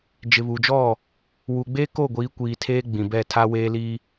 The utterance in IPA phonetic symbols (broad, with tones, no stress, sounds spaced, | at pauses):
d͡ʒ ɪ˨ β u˨ d͡ʒ ɔ˦˨ | w u˨ ɡ͡b eː˦ k oː˦˨ ɡʷ iː˨˦ kʷ iː˨ tʰ eː˦ ɡ͡b ĩ˨ b ɛ˦˨ tʰ a˦ w eː˦ l i˦